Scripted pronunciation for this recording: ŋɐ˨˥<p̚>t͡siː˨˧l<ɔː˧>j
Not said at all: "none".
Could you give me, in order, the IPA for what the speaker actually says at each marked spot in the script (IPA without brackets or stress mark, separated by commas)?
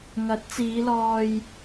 t̚, ɔː˧